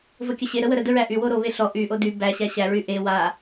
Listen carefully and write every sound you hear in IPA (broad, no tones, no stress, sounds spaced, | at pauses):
v ə kʲ ə ɕ e ɾ ə w ə ɾ ə d ə ɹ æ ʔ y w o ɾ o β e ɬ ɔ ʔ y ʔ o d y b æ ɕ æ ɕ æ ɹ y ʔ e w a